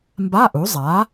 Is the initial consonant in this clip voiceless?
no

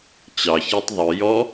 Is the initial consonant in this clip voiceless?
yes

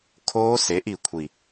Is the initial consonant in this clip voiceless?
yes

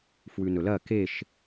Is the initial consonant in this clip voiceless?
yes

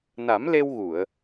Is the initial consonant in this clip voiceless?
no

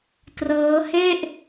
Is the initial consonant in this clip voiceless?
yes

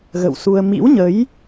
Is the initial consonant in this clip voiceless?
no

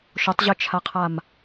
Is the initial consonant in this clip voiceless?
yes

